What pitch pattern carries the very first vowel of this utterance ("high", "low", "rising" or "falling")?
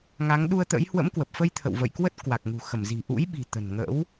rising